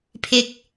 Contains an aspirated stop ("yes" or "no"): yes